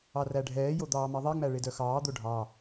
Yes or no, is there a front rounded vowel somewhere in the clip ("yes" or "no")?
yes